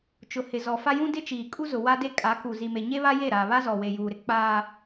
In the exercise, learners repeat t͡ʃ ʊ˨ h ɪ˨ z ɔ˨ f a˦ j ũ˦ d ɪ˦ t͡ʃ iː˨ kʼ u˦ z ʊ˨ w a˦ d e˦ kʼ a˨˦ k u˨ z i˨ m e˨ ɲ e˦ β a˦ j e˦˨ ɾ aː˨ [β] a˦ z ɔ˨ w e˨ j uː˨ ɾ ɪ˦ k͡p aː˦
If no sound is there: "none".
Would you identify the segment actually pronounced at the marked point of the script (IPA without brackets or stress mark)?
β